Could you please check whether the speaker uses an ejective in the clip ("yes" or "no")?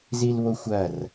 no